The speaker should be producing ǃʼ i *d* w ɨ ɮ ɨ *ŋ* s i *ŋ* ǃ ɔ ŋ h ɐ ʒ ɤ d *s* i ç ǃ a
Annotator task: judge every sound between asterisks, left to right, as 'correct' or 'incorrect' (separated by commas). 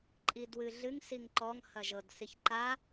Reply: correct, correct, correct, correct